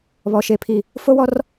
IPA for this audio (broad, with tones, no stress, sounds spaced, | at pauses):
β ɔ˨ ʃ e˨ pʰ i˨ | f o˦ w ɔ˦ r